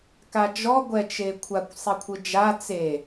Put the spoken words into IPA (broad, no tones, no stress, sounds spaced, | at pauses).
k a d͡ʒ ɔ ɡʷ ɛ t͡ʃ e kʷʰ a kʷ sˤ i kʷʰ ɯ d͡ʒ a t͡s e